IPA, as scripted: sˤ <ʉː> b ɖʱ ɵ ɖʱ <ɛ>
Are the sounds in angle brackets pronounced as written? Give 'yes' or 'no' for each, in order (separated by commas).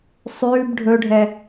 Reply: yes, yes